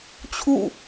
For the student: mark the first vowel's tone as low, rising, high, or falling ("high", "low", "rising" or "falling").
falling